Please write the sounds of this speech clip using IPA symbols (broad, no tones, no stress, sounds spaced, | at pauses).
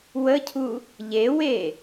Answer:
w ə cʰ u | ʎ e w e